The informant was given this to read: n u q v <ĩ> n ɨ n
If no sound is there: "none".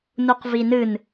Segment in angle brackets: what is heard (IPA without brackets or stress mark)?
i